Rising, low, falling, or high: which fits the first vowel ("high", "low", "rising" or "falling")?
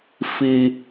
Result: high